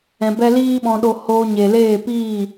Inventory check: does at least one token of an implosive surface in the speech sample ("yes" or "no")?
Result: yes